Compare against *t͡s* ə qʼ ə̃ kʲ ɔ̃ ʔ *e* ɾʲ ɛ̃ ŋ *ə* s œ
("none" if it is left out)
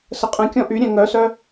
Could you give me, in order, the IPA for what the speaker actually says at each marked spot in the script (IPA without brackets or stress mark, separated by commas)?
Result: s, y, œ